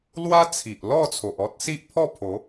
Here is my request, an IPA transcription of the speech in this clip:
lwa˦t͡sʰi˨ʔ lɔ˥˧t͡sʰo˨ʔ ɔ˦t̚si˦ʔpʰɔ˥˧pʰo˨˦

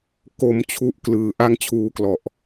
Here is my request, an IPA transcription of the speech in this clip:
ko˩˦mt͡ɕʰu˨˩ʔ klɯː˩˦ʔa˥˩ŋt͡ɕʰuː˦˥klɔ˨˩ʔ

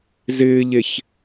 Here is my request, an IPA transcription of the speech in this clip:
zɪːʎeç

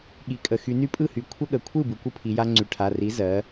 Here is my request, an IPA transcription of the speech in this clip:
ɠi˩kʼə˩ xy˩˧ny˦pʼɯ˥˨hy˩˧ kʷʰə˦ɠə˩kʷʰɯ˥˨ bɯ˩˧kʷɯ˦pʰi˩˧ja˦ ŋ͡ǀy˩˧ʈʰa˩˧˩ri˨˥ zɜ˨˥

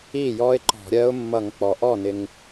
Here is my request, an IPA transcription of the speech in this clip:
i˥˩jɔ˦˥ɪ̯ ǃɔ̤˧˩˧ɾʲɜ˦˥ʊ̯ mːʌ˧˩˧ŋk͡pɔ˩ʔɔ˥˩nɪ˩ŋ

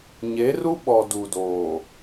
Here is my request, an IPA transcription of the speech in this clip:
ɲe˨˦ru˦ɓɔ˨ du˨doː˨

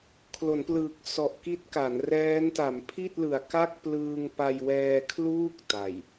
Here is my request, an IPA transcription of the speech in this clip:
kʰlo˩˦nplɯː˨˩k̚ sɔ˨˩ʔki˦˥t̚ka˩˦nrɛː˦˥n ta˩˦mpʰi˥˩t̚lɯ˨˩a̯ka˥˩k̚ plɯː˧ŋpa˧jwɛː˧ kʰluː˥˩k̚ ta˨˩j

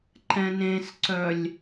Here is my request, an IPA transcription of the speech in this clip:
ǃɛ̃nẽsǀœlʲ

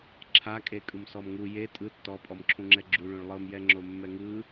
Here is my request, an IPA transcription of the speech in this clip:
ǁʰa kʼekʼɯmsɔmŋu je tʼɯ tːɔ pʼɔmǁʰũŋ͡ǁɛɡ͡ǁu ɭũɭlˠɤm jɛŋ͡ǁomːɛŋɯ

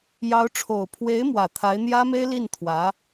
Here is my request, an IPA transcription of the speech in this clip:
jɑ˧˥ʊ̯ʈ͡ʂʰo˨˩ʊ̯ pʰwe˧˥ɪ̯mwä˨˩ t̪ʰa˧˥ɪ̯n̪jä˥me˥ɪ̯ li˥˩n t̪ʰwä˧˥

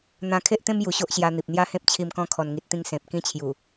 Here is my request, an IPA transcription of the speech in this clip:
n̪ã˧kʰe˦ʔt̪ẽ˦m ju˧ɕo˦ʔɕja˧ n̪i˨p̚n̪ja˦ hẽ˦p̚t͡ɕʰi˧m kɔ̃˧kʰɔ˨˩nŋi˨t̚t̪ĩ˧ŋ sẽ˨p̚ kĩ˧t͡ɕʰju˨˩

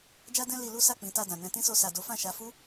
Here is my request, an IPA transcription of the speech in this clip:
d͡ʒa˦dɛ̃˦ li˧lu˦ sa˦˨k͡pĩ˨˦ta˧dã˨ nɛ̃˧tĩ˦so˧ sa˨do˨˦fã˦˨ʃa˨˦ fu˦

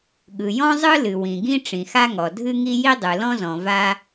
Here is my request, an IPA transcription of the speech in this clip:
ɠɯ˩jɔ̃˥zˤɯ˥lɨ˩ wĩ˩ɡĩ˥ ʈ͡ʂĩ˩xa˥ŋɔ˩ dʱɨ˥ŋi˥ ji˥dˤɯ˩lɔ̃˥zɔ̃˩ va˥

